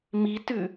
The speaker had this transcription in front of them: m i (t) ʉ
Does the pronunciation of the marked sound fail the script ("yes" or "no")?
no